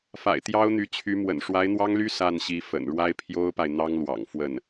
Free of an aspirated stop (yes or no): no